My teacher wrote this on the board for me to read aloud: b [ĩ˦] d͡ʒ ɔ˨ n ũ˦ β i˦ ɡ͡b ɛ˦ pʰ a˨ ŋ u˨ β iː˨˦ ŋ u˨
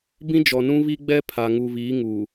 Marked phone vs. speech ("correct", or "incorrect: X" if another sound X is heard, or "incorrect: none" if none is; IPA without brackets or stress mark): correct